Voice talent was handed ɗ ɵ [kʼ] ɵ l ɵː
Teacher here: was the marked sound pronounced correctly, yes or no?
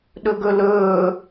no